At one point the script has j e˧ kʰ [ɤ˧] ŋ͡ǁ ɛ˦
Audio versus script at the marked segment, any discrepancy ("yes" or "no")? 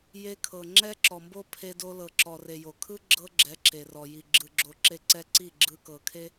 yes